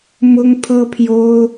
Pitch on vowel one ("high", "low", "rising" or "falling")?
high